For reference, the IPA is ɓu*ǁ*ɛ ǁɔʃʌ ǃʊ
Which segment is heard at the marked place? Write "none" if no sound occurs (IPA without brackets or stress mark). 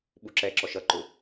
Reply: ǁ